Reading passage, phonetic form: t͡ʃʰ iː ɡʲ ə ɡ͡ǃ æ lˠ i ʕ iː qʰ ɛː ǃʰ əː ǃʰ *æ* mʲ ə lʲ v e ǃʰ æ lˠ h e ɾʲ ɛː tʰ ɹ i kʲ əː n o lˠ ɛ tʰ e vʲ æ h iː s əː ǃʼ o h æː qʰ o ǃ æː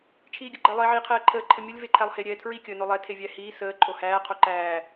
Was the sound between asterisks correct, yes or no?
no